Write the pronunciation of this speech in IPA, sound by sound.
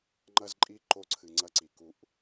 ŋ͡ǃɐ˦zǃʼi˦ ǃo˦ǀʰɨ˨ŋ͡ǀɐ˦ǀi˨ ku˦ʔ

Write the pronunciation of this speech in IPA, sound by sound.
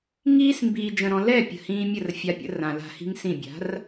ŋiː˦s mbiː˨d͡ʒə̃˨ɾɔ̃˨ lɛ˦˨ pʲə̤˨ hĩː˧mʲə˦˨rfʲa˧pʲə̰˧ rã˨la̤˧hi̤˦ŋsĩ˦˨ bʲa̤˨˦r

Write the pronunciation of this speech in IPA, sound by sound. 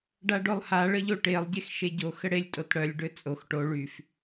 ɖaɖolˠha ɭəʎoʈelˠ ɟexʃeɟo xəɽelʲ tʼotɽœlʲ ɖøt͡sʼox ʈo ɭyf

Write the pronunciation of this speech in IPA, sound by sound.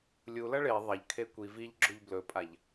lʲulɐ ɭe ðˤɐʎkʰe kʷi viʎɡ͡ǁoʎ blɵpʼaʎ

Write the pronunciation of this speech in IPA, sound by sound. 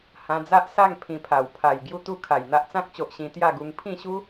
hã˧d͡za˦ʔsa˥˧ŋ pʰĩ˧pʰa˨˩w pʰa˨˩j ɡju˥˧t̪u˥˧kʰa˨˩j n̪a˦ʔt͡sã˦k̚t͡ɕo˨ʔ ɕĩ˧t̪ja˥˧ɡu˧ŋ pʰĩ˥˧ɕu˦

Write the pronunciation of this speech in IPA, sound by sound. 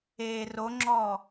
e roŋ͡ǁɔː

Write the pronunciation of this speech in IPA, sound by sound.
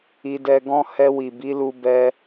i˧dɛ˧ɡɔ̃˦ hɛ˧wi˨bi˨˦lu˧ bɛ˦

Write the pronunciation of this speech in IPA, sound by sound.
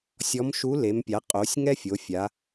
sʲɔ˧˥mʃu˧˥ le˩˧mpʲa˩˧qʼo˩˧sʲŋɛ˥ fʲo˩˧fʲa˩˧

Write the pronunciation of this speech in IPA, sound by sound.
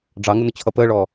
ɖ͡ʐɑŋʊnʊt͡ɕʰʌ pəːɭɔ

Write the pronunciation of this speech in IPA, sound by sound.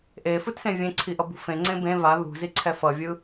ʔefɯtsẽ vʲẽǀʰiʔʌbṳ fẽŋ͡ǀẽ bẽ va ðṳziǀʰɛ fʌvʲɯ

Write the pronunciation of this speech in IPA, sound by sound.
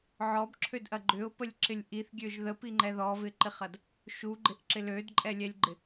ʕɔbǁʰødʔɐ ɡ͡ǃʏʊ̯pəlʲǁɪlʲ ʔiθɡʲøʒ ðəpiŋ͡ǃɛ ðɔvɪǃɪχɐd | ʃuɡ͡ǃɪʔǁɪ lødǃʼɛlʲɛlʲɡ͡ǃɪ

